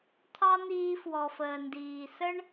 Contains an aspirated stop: yes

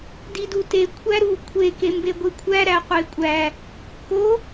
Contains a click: no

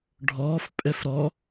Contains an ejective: yes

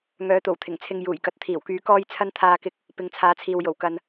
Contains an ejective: no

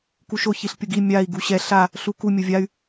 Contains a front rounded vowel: yes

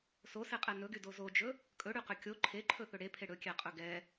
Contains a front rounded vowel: yes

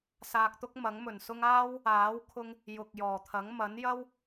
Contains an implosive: no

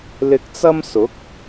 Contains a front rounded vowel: no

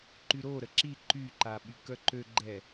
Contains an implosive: yes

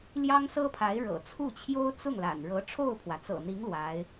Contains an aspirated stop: yes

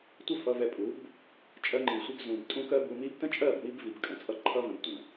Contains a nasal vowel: yes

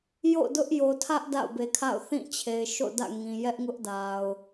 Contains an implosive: no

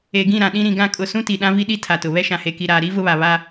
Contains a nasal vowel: yes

